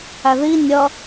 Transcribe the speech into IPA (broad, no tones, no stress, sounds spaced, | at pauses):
æ ð i nʲ ʌ